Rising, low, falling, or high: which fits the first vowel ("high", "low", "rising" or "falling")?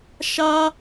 high